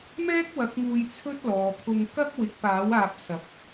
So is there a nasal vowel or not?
no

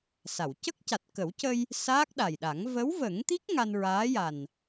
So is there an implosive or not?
yes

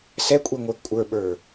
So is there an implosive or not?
yes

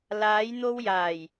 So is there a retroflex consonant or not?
no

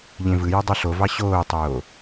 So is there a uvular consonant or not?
no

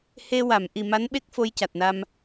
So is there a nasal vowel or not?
no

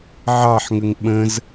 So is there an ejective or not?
no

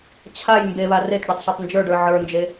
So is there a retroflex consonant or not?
yes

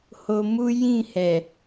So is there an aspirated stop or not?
no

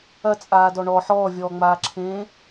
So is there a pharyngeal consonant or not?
yes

